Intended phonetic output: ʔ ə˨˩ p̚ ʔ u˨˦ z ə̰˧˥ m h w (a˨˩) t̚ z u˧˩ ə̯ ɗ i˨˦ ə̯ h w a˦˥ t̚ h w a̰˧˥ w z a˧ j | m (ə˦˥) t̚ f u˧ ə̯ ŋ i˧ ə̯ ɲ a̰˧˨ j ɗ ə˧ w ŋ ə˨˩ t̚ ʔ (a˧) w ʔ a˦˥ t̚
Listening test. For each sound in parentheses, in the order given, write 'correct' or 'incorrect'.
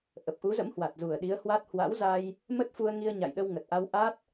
correct, correct, correct

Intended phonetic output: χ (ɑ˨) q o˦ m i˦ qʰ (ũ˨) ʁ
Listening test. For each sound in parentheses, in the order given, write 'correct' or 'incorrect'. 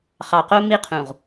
correct, correct

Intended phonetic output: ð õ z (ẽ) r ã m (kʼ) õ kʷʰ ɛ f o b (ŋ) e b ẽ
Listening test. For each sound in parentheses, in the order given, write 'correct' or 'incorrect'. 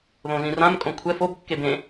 incorrect, correct, incorrect

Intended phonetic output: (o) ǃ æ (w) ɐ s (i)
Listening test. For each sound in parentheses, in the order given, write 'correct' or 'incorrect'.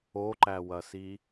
correct, correct, correct

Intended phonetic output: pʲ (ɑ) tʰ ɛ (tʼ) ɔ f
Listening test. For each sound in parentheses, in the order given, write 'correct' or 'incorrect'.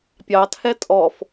correct, correct

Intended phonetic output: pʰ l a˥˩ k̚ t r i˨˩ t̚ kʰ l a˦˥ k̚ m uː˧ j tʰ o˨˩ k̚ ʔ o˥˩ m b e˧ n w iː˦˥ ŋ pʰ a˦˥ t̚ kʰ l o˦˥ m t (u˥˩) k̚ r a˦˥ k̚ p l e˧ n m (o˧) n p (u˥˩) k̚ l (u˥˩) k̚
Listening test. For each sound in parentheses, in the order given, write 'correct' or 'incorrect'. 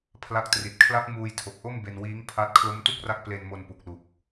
correct, correct, incorrect, incorrect

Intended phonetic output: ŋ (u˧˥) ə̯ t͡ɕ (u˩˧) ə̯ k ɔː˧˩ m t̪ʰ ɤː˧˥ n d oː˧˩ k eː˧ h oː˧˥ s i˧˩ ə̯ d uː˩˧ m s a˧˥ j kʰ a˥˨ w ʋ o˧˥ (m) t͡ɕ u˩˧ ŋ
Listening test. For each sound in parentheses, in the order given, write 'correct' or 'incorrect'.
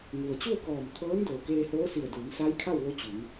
incorrect, incorrect, incorrect

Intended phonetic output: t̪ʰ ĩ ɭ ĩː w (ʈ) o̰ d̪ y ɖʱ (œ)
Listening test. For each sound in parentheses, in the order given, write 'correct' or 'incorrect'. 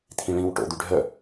correct, correct

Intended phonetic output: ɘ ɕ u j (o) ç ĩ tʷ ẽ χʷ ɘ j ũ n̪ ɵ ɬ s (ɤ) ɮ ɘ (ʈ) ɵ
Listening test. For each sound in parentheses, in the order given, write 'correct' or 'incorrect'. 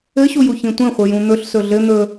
incorrect, incorrect, incorrect

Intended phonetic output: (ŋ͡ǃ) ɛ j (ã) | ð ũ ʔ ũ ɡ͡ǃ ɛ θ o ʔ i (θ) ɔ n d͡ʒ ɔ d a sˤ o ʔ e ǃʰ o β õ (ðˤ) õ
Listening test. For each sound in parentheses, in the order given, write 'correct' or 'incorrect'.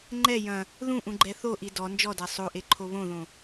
correct, incorrect, incorrect, incorrect

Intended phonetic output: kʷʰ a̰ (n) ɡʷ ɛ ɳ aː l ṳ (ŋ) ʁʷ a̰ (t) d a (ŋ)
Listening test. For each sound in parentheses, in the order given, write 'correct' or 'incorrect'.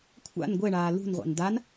correct, incorrect, incorrect, incorrect

